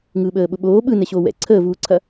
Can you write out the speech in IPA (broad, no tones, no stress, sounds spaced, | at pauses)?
ŋ ɯː ɓ əː ɓ ʊ ɓ oː ɓ ɯ n ɛ ɕ oː w ɛ̰ ǀʰ əː v uː ǀʰ ɐ